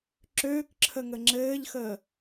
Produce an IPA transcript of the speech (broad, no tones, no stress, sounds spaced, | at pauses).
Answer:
ǁ øː k ǁʰ ə ŋ ə ŋ͡ǁ ɘː ʎ x əː